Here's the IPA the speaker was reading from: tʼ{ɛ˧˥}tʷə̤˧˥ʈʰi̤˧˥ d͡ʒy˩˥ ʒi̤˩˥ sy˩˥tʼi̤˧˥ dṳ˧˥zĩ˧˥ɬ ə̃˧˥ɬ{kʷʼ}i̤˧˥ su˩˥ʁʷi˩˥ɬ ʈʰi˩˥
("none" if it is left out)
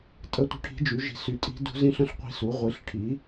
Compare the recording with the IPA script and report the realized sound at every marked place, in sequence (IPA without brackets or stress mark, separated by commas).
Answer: ə˧˥, qʷ